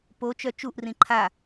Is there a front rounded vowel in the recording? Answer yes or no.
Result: yes